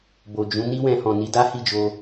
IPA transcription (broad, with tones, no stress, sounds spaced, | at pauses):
b o˨ d͡ʒ ũ˨˦ n i˦ w ɛ̃˧ h ɔ̃˨ n i˨˦ d a˦ h i˦˨ d͡ʒ o˧